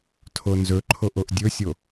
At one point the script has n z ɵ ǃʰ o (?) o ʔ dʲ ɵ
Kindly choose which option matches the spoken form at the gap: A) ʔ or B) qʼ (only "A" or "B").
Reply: A